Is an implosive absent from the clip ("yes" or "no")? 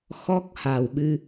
no